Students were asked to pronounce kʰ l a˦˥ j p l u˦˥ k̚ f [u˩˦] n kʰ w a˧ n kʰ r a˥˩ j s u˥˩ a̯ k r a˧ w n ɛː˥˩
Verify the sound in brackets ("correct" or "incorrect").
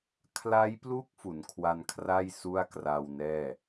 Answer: correct